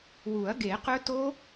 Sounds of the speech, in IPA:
wu˨˩˦ɐ̯ɡe˨˩˦qɵ˦˥ to˦˥

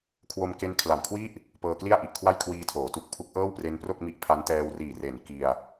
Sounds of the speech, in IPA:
kʰwo˧mke˦˥nkʰla˨˩mkʰwi˥˩ʔ | pɤː˧kli˥˩a̯ʔi˨˩ʔkʰwa˥˩j kʰwiː˧tʰoː˩˦ tu˨˩k̚ pʰu˦˥k̚ʔɤː˥˩wpre˦˥npro˥˩k̚ mi˦˥ʔpʰa˦˥n tɛː˧wriː˨˩ re˩˦n ki˧a̯

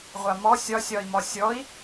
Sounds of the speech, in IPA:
ʁʷamɔ sʲɒ sʲɒi̯mɒsʲɔi̯

